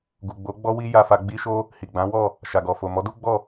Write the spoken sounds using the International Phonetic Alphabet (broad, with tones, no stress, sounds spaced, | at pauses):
ɡ u˨ ɡ͡b o˨˦ ɡ͡b ɔ˦ w i˦ j a˧ f a˧ ɡ͡b i˦ ʃ o˦ | h i˨ ɡ͡b ã˨˦ w ɔ˦˨ | ʃ a˨ ɡ ɔ˨ f o˨ m ɔ˨˦ d u˦ ɡ͡b ɔ˦˨